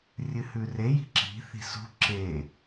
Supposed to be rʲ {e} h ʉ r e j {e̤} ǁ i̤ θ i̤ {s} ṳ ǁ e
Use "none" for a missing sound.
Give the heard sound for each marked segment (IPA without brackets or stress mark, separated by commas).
ɨ, i̤, s